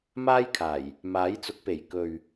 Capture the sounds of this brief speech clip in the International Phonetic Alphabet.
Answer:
m aː˥ j kʰ aː˨˩ j | m aː˨˥ j t͡s ʊ˨˥ k̚ p e˨˩ j k ɵ˨ ɥ

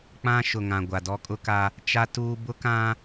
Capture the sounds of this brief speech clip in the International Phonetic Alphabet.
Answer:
k͡p ã˦ ʃ ʊ˨ ŋ ã˨ ɡʷ a˨ d ɔ˦ kʼ ʊ˦ k a˦ | t͡ʃ a˦ t uː˦ b ʊ˦ k ã˦

